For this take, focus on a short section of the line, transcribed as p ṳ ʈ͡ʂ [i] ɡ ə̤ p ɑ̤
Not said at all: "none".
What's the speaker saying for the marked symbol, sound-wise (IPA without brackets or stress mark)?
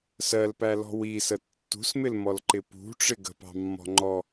ɪ